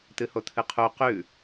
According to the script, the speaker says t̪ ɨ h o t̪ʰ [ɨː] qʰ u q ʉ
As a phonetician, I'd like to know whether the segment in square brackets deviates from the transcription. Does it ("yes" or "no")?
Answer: yes